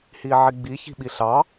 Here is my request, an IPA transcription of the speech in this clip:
h i ʕ i ɡ͡b i ç i̤ ɓ i ɬ ɑ

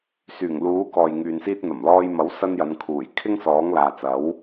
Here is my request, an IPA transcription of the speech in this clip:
s yː˨˩ ŋ l uː˨˥ k ɔː˨ j ŋ yː˨ n s iː˧ t̚ n̪ ɐ˨˩ m l ɔː˧ j m ɐ˨˥ w s ɐ˥ n j ɐ˨˧ n kʰ uː˨˩ j kʰ ɪ˥ ŋ s ɔː˨˥ ŋ l aː˨ t͡s ɐ˨˥ w

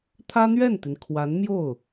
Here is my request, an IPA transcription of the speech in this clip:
t̪ʰ ä˥ n̪ ɥ ɛ˥˩ n t̪ i˩ n kʰ w a˧˥ n m j o˥˩ ʊ̯

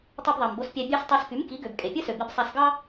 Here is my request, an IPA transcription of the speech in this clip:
tˤ ɯ˧ b ðˤ ɑ˩ m b o˧ s pʲ æ˧ bʲ ɑ˧ s tˤ ɑ˧ s k y˩˥ m k i˩˥ ɡ ø˩ b kʼ e˩ pʲ ɯ˥ s ø˩ b i˧ b sˤ æ˧ s ɡ ɑ˥

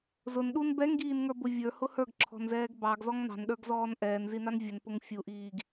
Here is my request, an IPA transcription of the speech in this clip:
z ʊ n ɗ u n b ɛ ŋ ɡ iː n ŋ ə˞ b ʊ vʲ ə˞ h ʊ h ə˞ ɡ ǁʰ ɔ̤ n z ɛː ɡ b ɑ ɡ z ɔ ŋ n ɑ̤ n ɗ ə˞ ɡ z ɔː n ʔ ɛː n z i n ɑ n vʲ ə n p ʊ ŋ fʲ u ʔ iː ɡ

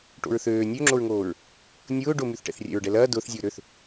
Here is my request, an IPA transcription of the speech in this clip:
ʈ o̰ ɹ θ øː nʲ ø ŋ͡ǁ o ɹ ŋ oː ɹ | nʲ ʊː ɖ ʊ m y θ ʈ ɛ̰ θ rʲ ɛ̰ ɹ ɖ ɛ l ɐː d ʊː θ zʲ ʊː ɾ ø θ

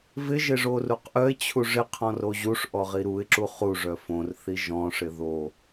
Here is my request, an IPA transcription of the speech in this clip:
v ɪ ʒ ɪ ʐ o r u q ʔ œ ɪ̯ t͡ɕʰ u ʐ ɪ qʰ ɔ̃ r o ʑ u ʂ ʔ ɔ ʁ i ɾ u ɪ̯ ǁ u χ u ʐ œ f õ r θ i ʒ ɔ̃ ʂ ɪ ð o

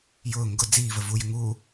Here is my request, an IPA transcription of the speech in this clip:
j ʊː ŋ ɡ ʊ d͡z iː v ə v u j ɪ ŋ uː

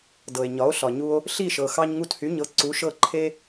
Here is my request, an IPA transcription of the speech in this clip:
d ɤ˩ e̯ ɲ ɒ˩˥ o̯ ɬ ɒ˩ ɲ u˧ o̯ | ɬ i˥˩ ʃ ɤ˩ x ɑ˧ ɲ ŋ u˧ t h y˩˥ ɲ ɤ˩˥ ǀ u˩˥ ʃ ɤ˥˩ ǃʰ e˥

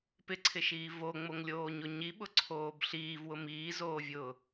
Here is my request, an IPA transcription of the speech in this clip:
p ɪ ǀʰ ɪ ʃ iː v o ŋ͡m o ŋ lʲ oː ɲ ʊ ɲ i ɓ ʊ ǀʰ oː b ɬ iː v w ʊ m iː z oː vʲ ʊː

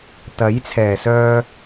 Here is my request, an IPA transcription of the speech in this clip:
t̪ ɐ˨˥ j t͡sʰ ɛː˨˩ s œː˧

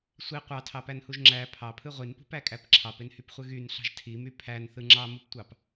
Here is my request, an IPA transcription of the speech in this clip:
sʷ i qʷ ɑ tʰ ɑ p æ n h u ʒ ŋ͡ǁ æ pʰ ɑ pʰ ɯ ʁʷ i n p ṳ p æ kʼ æ p ǁʰ ɑ p e n h y p χʷ ɯ ɣ y n ɬ ɑ̤ ʒ tʰ i m y pʰ æ n θ ɯ ŋ͡ǁ ɑ m u p tʷ ɑ p

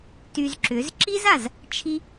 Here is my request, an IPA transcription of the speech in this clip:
t y˧ z ǁ ʏ˨˦ z ǁ i˦ z a˨ z | t͡ʃʰ i˧

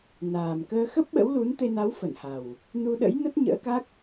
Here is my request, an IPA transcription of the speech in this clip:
n aː˨˩ m k əː˧ x ə˦˥ p̚ ɓ ə̰˧˥ w l u˨˦ n t̪ e˧ n a˨˦ w f ə˧˩ n h a˨˩ w | n u˧ ɗ ə̰˧˥ j n ə˦˥ t̚ ɲ ə̰ː˧˥ k a˦˥ k̚

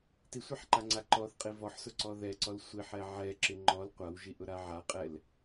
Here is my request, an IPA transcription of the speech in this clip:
t i sʷ a ħ ǃ a ŋ͡ǀ a ǃ ɔ θ qʼ i v ɔ ħ s ʊ ǀ ɔ ð ɛ ǀ ɔ l sʷ i ħ ɛ ʕ ɛ ǁ ɪ ŋ͡ǃ ɔ l qʷ a w ʒ i ʔ ʊ ɾ a ʕ a qʼ ɛ l

